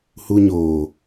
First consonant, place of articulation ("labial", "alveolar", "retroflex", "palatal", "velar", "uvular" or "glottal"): glottal